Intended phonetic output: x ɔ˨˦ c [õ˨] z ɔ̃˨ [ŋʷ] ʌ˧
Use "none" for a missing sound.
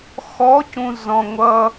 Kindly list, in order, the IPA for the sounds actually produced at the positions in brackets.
ũ˨, ŋʷ

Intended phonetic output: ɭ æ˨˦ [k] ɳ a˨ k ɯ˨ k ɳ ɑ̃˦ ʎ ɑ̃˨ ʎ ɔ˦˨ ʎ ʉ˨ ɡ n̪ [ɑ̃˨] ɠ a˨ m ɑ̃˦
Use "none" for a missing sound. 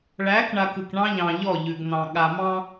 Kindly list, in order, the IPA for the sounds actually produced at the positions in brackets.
k, ɑ̃˨

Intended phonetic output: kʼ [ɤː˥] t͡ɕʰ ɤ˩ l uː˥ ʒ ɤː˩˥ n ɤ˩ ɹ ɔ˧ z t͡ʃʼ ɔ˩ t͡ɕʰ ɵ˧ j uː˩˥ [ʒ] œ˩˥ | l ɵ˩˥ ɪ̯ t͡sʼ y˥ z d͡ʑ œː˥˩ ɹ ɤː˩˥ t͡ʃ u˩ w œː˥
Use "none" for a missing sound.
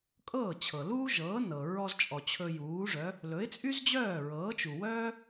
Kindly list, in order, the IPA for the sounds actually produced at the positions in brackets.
ɤː˥˩, ʐ

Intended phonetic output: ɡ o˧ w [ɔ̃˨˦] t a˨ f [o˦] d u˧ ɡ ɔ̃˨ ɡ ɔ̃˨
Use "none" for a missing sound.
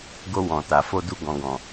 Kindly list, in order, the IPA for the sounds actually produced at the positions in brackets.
ɔ̃˨, o˧

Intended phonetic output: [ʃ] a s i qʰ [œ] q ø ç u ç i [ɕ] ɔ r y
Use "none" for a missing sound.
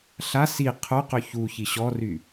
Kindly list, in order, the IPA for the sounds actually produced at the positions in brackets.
ɬ, œ, ɕ

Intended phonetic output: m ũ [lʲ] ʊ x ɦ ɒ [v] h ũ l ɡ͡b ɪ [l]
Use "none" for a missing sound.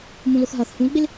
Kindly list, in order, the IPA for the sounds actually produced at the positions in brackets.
l, θ, l

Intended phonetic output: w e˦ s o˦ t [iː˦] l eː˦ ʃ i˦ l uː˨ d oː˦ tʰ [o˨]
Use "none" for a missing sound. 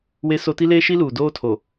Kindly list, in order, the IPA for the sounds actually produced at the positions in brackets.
i˦, o˨

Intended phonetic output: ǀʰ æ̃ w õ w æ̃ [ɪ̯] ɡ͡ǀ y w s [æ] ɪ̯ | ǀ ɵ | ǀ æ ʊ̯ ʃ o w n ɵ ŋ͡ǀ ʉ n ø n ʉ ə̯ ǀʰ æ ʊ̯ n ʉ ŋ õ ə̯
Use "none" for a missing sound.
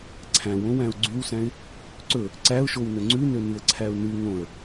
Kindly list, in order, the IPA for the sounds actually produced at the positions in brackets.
ʊ̯, æ̃

